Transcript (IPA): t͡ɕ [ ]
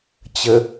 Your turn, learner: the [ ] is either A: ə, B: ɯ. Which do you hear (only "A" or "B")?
A